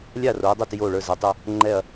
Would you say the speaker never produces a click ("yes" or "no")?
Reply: no